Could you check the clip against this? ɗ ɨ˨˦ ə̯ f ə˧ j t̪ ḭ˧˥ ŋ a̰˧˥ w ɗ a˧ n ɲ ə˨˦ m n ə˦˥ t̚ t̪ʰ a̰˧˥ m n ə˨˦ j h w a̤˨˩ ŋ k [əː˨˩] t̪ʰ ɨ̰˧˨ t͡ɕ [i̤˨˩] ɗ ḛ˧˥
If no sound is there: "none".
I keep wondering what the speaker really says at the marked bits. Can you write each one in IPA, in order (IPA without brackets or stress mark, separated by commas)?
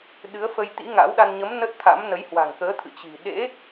əː˨˦, i̤˨˩